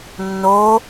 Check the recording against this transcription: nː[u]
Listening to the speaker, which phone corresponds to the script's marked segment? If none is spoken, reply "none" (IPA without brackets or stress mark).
o